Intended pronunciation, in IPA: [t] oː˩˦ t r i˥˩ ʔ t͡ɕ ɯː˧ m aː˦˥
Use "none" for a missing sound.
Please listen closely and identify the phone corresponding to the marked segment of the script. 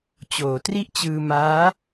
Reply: t͡ɕ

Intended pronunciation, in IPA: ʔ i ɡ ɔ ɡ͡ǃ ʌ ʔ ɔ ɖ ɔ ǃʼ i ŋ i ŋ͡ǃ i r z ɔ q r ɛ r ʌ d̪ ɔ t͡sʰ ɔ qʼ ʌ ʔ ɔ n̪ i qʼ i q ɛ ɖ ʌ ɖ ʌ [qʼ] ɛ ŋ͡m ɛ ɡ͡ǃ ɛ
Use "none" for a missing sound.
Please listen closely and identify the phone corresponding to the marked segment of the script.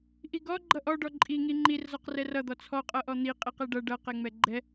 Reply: q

